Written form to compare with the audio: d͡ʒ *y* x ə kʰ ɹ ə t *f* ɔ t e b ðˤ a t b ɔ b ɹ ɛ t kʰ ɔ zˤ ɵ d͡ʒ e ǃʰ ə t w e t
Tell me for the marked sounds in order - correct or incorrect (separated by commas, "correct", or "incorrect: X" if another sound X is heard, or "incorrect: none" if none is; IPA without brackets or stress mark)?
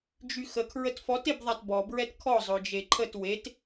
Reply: correct, correct